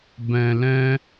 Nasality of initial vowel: nasal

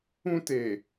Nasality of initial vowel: nasal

